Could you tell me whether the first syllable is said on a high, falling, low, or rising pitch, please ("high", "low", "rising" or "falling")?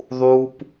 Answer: high